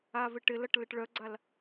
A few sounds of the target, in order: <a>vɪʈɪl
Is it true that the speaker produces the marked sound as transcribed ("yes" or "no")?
yes